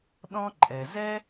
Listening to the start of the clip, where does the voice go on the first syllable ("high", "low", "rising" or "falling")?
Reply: high